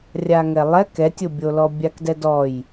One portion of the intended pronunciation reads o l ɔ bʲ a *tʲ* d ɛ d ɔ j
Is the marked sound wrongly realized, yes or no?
yes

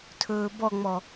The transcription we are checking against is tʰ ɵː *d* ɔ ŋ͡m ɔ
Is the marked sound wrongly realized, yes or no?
yes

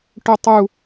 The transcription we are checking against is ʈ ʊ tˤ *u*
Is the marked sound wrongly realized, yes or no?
no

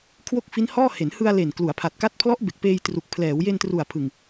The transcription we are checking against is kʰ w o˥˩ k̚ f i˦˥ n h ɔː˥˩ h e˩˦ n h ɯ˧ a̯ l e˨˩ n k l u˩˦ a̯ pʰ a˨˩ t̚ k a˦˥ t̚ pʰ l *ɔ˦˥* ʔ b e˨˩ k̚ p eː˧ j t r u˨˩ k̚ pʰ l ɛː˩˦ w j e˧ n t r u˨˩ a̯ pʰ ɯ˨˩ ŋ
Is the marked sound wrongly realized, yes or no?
no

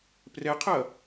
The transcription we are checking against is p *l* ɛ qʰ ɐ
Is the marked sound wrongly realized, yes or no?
yes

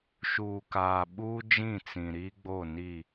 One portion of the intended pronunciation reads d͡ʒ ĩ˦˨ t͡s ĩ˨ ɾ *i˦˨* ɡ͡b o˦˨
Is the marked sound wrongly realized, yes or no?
yes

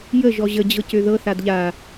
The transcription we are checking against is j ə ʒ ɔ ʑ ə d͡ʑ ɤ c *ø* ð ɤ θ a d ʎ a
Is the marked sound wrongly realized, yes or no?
no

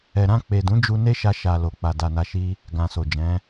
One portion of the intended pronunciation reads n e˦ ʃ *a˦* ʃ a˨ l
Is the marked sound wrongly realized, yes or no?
yes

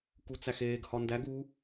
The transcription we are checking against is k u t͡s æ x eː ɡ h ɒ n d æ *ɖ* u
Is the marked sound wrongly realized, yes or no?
yes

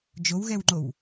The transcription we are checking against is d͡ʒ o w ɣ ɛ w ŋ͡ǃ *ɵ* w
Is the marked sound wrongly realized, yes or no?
yes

